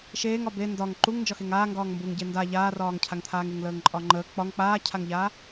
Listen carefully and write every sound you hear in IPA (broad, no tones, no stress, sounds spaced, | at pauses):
ʃ eː ŋ ɒ b e n d ɒ ŋ ǃ u ŋ n d͡ʒ ɒ x e ŋ aː ŋ ɡ ɒː ŋ m b u ŋ ɟ e n d a ʎ aː r ɒː ŋ cʰ a ŋ t̪ʰ aː ŋ e ŋ l əː ŋ ǃʼ ɒ ŋ͡ǃ əː k͡p ɒ ŋ k͡p aː cʰ a ŋ ʎ a